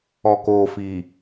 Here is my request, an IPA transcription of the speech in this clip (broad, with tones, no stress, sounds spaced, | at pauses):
ɔ˨ k oː˨ f i˨